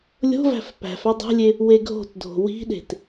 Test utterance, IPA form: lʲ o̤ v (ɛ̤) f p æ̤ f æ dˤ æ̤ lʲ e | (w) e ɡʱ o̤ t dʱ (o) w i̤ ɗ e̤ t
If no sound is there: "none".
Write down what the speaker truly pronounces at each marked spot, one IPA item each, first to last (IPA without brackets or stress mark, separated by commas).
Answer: æ̤, w, o̤